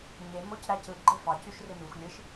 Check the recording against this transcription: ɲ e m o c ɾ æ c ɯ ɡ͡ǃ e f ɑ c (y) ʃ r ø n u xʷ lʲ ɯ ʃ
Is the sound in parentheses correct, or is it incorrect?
correct